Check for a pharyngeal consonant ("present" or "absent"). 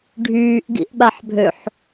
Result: present